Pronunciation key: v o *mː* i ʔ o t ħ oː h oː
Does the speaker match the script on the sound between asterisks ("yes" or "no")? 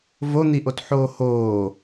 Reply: no